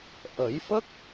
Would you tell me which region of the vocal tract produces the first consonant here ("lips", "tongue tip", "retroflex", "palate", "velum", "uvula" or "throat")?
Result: throat